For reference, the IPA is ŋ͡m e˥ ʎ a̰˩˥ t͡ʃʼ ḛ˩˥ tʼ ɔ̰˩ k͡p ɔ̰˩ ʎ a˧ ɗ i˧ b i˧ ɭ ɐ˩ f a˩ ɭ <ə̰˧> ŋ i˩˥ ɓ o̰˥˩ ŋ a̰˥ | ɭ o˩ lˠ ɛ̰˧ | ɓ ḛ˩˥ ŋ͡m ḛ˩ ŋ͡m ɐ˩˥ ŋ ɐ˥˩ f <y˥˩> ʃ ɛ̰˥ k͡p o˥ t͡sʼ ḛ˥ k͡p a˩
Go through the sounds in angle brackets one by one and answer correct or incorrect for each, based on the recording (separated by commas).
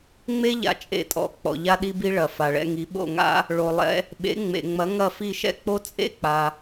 incorrect, incorrect